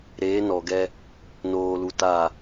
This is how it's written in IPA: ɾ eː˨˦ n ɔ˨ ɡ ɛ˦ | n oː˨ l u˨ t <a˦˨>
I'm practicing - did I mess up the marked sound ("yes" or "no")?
no